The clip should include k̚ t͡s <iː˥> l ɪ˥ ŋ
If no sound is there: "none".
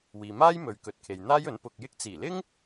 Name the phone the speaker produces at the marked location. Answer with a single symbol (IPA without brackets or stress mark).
iː˨˩